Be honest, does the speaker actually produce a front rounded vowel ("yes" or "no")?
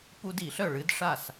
yes